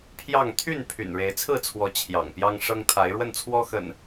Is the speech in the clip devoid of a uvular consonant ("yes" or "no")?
yes